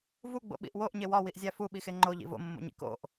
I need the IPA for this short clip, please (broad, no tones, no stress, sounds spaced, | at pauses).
v u ɡ͡b o̰ ɓ ḭ ʔ w o ʔ ɲ e w ɒ w i ʔ zʲ æ f u ɓ i x e ŋ͡ǃ o ʎ ḭ v o̰ mː o̰ ɲ ḭ k o̰ ʔ